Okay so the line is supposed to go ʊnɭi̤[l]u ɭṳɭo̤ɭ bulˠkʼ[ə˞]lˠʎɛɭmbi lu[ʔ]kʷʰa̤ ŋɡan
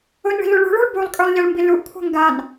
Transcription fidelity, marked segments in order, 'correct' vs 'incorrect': correct, correct, correct

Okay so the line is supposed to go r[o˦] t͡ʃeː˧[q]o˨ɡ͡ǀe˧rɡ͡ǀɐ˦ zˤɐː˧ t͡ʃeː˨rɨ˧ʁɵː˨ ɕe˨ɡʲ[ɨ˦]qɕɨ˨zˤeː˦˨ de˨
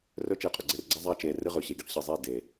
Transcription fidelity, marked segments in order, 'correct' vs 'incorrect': incorrect: ɵ˦, incorrect: qʼ, incorrect: ɨ˧

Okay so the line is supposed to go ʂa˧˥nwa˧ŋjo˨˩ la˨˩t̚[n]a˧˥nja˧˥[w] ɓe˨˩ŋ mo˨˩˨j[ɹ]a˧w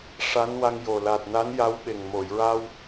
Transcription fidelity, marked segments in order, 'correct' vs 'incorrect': correct, correct, correct

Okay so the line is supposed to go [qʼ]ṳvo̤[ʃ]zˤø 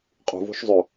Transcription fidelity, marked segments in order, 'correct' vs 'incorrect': correct, correct

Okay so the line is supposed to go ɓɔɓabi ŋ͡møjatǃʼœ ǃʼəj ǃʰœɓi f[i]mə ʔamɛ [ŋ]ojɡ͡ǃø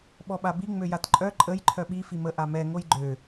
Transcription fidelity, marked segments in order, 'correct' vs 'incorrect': correct, correct

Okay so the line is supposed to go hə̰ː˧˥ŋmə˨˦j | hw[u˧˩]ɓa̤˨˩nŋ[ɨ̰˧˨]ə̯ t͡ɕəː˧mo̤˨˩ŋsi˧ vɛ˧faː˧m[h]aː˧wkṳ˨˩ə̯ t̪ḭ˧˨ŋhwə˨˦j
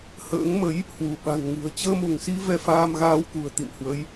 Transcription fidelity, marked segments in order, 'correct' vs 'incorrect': correct, incorrect: ɨ̤˨˩, incorrect: ɣ

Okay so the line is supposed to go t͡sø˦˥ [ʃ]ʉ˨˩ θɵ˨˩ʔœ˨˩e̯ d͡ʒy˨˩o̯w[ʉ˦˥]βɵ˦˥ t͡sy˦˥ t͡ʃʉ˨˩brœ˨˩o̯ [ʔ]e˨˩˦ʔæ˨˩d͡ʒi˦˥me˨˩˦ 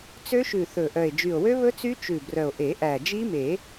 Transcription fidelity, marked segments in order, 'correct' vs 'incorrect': correct, incorrect: ø˦˥, correct

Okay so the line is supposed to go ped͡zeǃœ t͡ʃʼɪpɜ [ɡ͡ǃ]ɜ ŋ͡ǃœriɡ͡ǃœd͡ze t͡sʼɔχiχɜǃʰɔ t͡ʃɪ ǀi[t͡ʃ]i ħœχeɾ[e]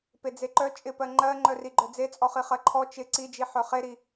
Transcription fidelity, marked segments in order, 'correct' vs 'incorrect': incorrect: ŋ͡ǃ, incorrect: d͡ʒ, incorrect: i

